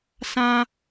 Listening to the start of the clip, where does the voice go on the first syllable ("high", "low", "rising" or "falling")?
high